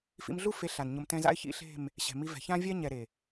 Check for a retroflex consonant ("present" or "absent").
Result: absent